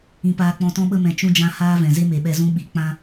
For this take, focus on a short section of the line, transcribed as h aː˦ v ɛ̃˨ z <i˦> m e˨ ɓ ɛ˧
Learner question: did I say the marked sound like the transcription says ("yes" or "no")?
no